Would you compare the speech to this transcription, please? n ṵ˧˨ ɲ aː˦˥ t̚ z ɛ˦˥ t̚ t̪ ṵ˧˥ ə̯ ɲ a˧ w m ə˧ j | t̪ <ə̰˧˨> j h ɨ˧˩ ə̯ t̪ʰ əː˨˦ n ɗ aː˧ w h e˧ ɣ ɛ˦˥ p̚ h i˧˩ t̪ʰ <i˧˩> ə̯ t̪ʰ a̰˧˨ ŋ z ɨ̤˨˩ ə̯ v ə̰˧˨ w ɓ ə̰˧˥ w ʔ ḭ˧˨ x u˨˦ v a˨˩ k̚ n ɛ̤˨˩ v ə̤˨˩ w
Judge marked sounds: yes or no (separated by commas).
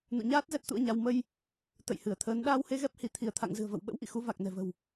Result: yes, yes